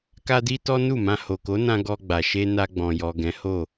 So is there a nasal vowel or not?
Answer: yes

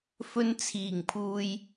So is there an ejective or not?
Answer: no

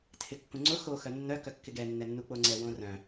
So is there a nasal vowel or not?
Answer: yes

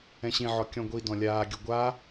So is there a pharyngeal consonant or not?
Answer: yes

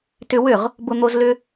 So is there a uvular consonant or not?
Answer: yes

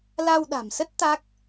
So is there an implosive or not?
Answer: yes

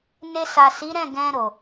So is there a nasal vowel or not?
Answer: yes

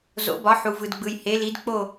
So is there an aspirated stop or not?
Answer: no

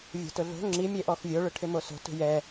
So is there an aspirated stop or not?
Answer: yes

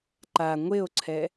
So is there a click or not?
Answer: yes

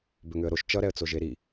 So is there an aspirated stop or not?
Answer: no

